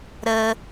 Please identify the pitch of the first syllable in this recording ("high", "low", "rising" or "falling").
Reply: high